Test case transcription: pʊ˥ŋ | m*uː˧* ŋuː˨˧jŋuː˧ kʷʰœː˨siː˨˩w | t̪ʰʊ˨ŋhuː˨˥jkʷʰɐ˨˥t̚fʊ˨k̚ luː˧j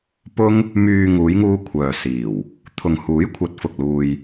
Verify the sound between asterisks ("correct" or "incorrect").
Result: incorrect